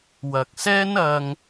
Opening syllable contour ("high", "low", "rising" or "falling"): low